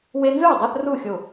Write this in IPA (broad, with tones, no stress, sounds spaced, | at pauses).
w e˦ n z ɯ˥˨ e̯ dˤ a˦ θ r u˥˨ xʲ o˧˩